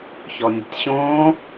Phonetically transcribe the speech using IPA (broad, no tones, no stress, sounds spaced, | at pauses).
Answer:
ç ɔ nʲ ə̤ tʲ ɕ õː